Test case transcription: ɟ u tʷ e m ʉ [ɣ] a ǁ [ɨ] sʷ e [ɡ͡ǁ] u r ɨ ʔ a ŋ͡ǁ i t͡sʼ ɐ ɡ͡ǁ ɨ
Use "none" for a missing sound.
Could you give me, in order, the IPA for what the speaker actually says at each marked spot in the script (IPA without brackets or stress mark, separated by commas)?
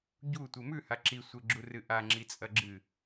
h, i, ɡ͡ǁ